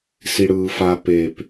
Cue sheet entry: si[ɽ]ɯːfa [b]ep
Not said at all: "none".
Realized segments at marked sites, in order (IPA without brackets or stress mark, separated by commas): ɽ, p